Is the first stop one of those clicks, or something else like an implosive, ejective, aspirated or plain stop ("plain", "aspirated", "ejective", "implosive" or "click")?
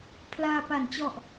aspirated